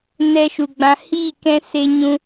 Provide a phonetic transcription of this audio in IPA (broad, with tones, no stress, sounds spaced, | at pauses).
n ɛ˧ ʃ u˨ ɡ͡b ã˧ h i˦˨ k ɛ̃˦ s e˦ ɲ ũ˦